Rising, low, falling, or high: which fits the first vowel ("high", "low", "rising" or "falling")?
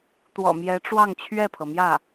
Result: low